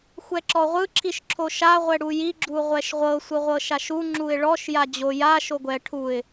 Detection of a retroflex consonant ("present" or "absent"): present